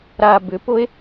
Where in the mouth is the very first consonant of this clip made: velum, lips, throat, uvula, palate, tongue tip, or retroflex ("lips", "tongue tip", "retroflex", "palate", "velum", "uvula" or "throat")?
tongue tip